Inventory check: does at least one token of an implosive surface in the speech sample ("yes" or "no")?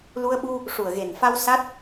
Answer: yes